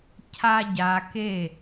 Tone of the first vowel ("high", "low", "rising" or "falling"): high